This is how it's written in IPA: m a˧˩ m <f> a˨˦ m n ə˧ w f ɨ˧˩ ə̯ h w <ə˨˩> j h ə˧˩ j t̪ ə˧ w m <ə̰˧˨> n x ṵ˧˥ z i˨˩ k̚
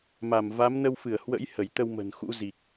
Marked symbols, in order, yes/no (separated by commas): no, no, no